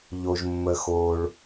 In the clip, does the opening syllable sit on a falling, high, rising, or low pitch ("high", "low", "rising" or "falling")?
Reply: low